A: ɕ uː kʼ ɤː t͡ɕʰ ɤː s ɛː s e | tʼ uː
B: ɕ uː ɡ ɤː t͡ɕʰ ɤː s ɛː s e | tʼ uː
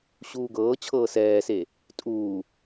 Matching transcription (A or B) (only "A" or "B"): B